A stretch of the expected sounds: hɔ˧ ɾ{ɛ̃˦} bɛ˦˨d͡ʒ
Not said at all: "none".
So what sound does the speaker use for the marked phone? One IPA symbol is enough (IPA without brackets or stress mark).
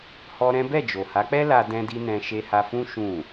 ɛ̃˦